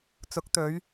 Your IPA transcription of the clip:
t͡sʊ˨˥k̚t̪ɵ˨˧ɥ

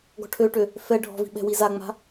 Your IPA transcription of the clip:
ɡɔ̤ʈʰøʈø | fɛ ɖʱɔ̤vi̤ ɓɛ̤wizaŋ͡ma̤

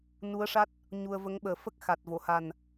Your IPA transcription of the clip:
nu˧˥ə̯ʂa˦˥t̚ | ɲu˧ə̯və˧˥ŋɓəː˨˩˦ fə˦˥k̚xa˨˩t̚vo˨˩˨ ha˨˩n

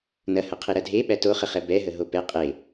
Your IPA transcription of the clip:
nɐhɐqʰe ɾɐdʱe ɓætoχəχɛ bɛɦə ɦopɛ qʼe

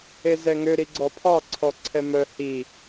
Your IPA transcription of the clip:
ezɛŋø ɾiɡ͡ǀɔpʰɑ ǀʰɔǀʰɛmœ hi

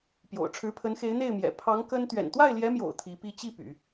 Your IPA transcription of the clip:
pjo̰˨˩ʊ̯ʈ͡ʂʰɻ̩˧˥pʰə˧˥nxe˧˥ɪ̯ n̪e˥˩ɪ̯mjɛ̰˨˩ pʰɑ˧˥ŋ kə˥n t̪ɥɛ̰˨˩nt̪wa˥˩ɪ̯ljɛ˧˥mjo̰˨˩ʊ̯ t̪ʰi˧˥pi˥˧ t͡ɕi˥˩ py̰˨˩˦

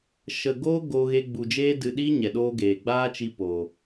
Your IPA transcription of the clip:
ʃə˨ɡoː˦ ɡoː˧ɣe˧ɡ͡bu˨d͡ʒeː˦ dɨ˨ɗiː˦ ɲɛ˨ɗoː˦ɡeː˨ ɡ͡baː˦t͡ʃi˧ poː˨

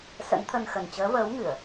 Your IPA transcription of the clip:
sə̰˧˥nt̪ʰə˧nxə˨˩n t͡ɕəː˨˦vəː˨˦wŋɨ˧˩˨ə̯

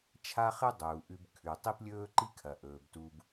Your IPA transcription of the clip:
t͡ʃʰa˥χɨ˥ dˤuː˩ ʔʉ˧bkʰʉ˩ tˤi˥plʲɵː˥ǃi˥ kʰɐ˩ʔɵː˩b tu˧b

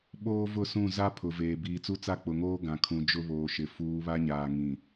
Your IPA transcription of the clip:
ɓoː˦vʊ˦˨sũ˦˨ za˦ pʰʊ˨veː˨ biː˨t͡su˦t͡sa˦ k͡pʊ˨ŋoː˦ ɡã˨kʰũ˨ d͡ʒʊ˦βoː˨ʃɪ˨ fuː˨˦βa˦ɲaː˨ ŋĩ˨

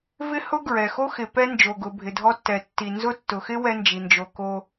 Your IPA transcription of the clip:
vɪ˦hʊ˦ɡɹɛ˩xo˦ xɪ˨ pɛ˥nd͡ʒo˩ɡʊ˨ bʱɪ˨dʱɔ˥tːɛ˨tːi˨ nzʊ˦tːʊ˩xɪ˥ wɛ˥nd͡ʒi˩nd͡ʒo˨ko˦

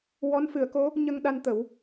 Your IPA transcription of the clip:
wɔ˧˥nfɨ˨˩˦ə̯ko˧˥ | ɲə˧ŋɗa˧nt̪ə˨˩˦w

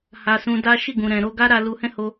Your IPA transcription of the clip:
ha˧ sũ˧da˦ ʃi˦˨ɡũ˨ ɾɛ̃˨ ɾo˧ɡa˦ɾa˧ lu˧hɛ̃˦ho˧

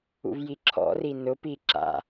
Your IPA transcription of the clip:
ṵvjiǁʰɔ̰ri nʊpi ǁa̰

